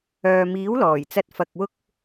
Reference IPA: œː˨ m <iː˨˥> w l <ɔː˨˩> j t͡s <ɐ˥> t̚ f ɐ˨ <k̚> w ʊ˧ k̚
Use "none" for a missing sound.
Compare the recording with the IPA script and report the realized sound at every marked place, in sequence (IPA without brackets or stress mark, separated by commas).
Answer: iː˨˥, ɔː˨˩, ɐ˧, k̚